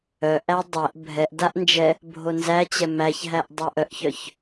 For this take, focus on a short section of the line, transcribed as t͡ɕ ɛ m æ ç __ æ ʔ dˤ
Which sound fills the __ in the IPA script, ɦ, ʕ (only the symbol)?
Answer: ɦ